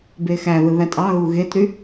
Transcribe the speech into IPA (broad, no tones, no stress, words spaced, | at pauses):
bexæðɯ ðætʼɑɣu ɣetɾy